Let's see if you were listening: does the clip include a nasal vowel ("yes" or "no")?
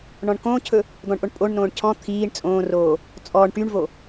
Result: yes